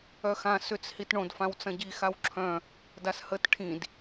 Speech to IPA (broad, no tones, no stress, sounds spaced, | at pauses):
œ x ã s ʏ t͡s h i t ɳ õ d f ã w t͡s ɐ̃ ɟ i x a w ǁʰ œ̃ | d a s h ə t ʈʰ ĩ d